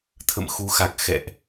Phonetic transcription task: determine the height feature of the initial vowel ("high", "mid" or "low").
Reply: mid